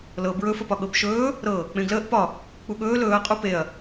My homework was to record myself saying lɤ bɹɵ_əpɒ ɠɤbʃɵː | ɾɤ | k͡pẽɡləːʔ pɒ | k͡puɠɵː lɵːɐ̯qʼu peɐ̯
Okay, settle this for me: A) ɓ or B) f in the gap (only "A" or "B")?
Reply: B